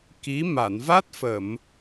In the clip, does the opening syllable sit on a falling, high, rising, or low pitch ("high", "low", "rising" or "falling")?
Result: rising